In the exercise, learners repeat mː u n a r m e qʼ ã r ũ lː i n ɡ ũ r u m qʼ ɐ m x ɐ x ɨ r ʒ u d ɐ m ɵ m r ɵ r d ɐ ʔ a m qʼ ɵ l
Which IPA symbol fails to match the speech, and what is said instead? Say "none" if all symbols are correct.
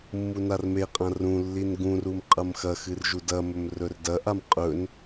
l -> n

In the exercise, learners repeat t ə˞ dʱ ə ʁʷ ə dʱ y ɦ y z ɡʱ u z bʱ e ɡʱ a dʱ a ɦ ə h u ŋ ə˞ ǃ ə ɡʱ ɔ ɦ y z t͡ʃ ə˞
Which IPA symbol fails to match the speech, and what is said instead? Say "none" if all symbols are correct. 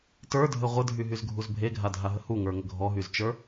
ǃ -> ŋ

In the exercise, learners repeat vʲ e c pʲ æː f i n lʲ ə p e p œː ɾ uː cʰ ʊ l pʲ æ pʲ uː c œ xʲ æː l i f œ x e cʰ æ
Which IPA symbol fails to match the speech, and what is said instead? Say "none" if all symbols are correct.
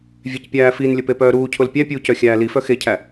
none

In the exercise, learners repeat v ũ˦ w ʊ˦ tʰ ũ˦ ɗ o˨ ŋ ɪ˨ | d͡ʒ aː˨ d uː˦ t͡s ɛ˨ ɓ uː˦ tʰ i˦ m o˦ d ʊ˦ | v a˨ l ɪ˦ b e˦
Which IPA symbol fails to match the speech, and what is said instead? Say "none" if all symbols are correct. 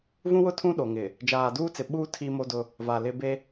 ɛ˨ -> ɪ˨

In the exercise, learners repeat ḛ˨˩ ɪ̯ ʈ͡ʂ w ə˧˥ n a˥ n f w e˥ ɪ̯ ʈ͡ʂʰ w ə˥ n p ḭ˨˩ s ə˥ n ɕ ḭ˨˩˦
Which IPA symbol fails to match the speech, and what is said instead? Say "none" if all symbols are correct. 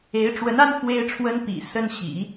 ḛ˨˩ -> e˧˥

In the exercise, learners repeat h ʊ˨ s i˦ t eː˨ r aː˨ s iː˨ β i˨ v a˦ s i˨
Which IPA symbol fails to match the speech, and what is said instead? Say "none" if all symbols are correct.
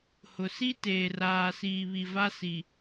none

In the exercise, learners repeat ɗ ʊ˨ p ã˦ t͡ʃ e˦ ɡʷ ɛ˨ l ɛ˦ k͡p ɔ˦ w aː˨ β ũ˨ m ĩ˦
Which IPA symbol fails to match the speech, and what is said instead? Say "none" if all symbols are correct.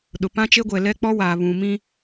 none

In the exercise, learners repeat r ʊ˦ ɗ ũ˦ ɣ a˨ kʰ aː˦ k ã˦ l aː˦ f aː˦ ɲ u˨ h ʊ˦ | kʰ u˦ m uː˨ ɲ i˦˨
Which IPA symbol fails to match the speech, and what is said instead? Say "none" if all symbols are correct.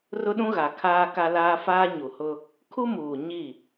ã˦ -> a˦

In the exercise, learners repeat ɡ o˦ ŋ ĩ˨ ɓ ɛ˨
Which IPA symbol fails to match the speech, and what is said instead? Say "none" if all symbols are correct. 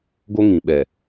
none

